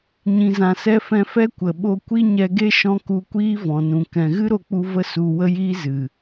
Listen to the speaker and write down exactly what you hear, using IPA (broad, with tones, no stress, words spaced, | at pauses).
ɲĩ˨zã˨sɛ˧ fɛ̃˧fɛ˦kʷə˨ ɓo˧kʷi˦ɲɛ˧ɡe˦ ʃɔ̃˦ku˧kʷiː˦ vɔ̃˨nũ˨ kɛ̃˨ɣɨ˦ ɾo˧k͡pu˧və˦˨ su˧ wə˦jiː˦ zɨ˨